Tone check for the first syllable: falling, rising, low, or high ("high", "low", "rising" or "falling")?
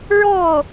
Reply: falling